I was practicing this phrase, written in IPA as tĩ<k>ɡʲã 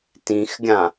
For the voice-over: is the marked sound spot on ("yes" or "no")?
no